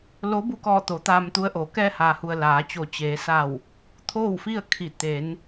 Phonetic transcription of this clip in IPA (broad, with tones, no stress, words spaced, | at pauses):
lo˧˥ bu˧kɔː˧˩t̪o˩˧ t̪aː˧mt̪u˧˥ə̯ʔoː˩˧ kɛː˧haː˩hu˩ə̯ laː˩˧t͡ɕo˧˩ t͡ɕeː˩˧ sa˧˩w | t̪ʰoː˥˨wfi˥˨ə̯kʰi˧˩ t̪e˩˧n